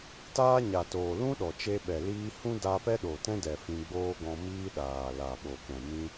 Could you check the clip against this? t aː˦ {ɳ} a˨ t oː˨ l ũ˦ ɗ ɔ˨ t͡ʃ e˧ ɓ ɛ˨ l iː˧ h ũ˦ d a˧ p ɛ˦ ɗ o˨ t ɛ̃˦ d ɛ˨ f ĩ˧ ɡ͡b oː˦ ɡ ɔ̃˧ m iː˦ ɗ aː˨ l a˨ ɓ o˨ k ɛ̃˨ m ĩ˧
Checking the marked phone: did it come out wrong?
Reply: yes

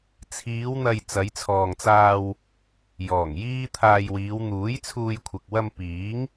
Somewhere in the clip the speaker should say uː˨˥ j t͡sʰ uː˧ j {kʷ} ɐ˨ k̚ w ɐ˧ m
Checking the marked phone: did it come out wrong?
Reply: yes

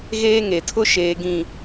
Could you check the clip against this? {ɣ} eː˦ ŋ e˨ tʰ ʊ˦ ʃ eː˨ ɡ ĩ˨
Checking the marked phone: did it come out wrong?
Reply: no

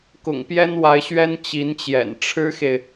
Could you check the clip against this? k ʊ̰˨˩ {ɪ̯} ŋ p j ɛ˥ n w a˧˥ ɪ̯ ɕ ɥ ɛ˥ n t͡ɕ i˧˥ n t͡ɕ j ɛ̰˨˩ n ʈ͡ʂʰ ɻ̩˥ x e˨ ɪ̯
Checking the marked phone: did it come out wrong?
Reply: yes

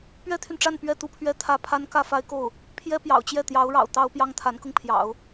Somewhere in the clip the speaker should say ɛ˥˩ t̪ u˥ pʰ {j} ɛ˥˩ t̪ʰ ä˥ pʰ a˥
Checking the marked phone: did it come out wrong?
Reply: yes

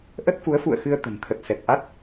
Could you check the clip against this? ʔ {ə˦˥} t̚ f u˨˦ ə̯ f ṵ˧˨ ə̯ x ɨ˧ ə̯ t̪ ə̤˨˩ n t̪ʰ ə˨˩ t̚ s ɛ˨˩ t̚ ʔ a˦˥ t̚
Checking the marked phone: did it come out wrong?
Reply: no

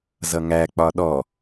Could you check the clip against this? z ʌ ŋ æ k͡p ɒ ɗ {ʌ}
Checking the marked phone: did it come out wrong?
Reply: yes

